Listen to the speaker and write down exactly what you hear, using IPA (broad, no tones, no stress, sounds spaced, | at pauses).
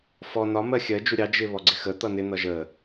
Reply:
f ɔ n ɒ m ɜ xʲ ɜ d͡ʒ u ɾʲ ɑ d͡ʒ ɪ β ɔ ɡ͡ǀ ɪ x ə t̪ ʌ n ɪ n̪ ʌ ʒ ə